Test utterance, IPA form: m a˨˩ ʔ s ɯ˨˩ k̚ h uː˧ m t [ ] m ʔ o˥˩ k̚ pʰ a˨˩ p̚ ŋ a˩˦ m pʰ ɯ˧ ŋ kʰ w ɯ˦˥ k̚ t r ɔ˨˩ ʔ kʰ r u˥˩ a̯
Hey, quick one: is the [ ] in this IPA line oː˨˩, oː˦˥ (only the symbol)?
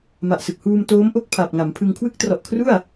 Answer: oː˦˥